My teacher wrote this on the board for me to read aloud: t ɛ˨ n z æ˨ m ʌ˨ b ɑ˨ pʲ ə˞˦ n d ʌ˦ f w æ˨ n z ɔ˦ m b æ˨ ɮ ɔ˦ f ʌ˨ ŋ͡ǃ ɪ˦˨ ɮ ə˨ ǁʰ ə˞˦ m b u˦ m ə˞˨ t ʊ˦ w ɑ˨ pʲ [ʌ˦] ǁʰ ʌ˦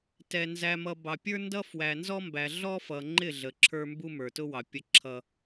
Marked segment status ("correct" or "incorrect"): incorrect